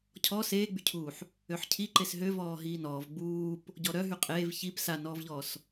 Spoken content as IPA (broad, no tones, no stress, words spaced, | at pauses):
cʰɔ seːɡ͡bycʰuːħ | øħcʰi ǃesɦø vɔːɦiːnɔːv ɡ͡buːp | ɟɔɾœ ɦyqʼeːv çip sanɔːvʎɔːs